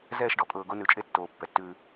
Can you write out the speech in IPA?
zɛː˦˨ʃɖɔ˧ kʼɤː˨ ɡo˧nʉ˨t͡ʃʼe˧ tːoː˨ pːɛ˨tːʉː˧

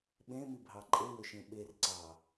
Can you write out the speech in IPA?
ɓẽmibʱɑ ǃʼewøʃẽ ɓerǀɑ

